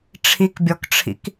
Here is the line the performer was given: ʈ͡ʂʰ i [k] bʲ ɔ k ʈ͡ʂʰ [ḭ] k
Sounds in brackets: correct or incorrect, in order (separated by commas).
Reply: correct, correct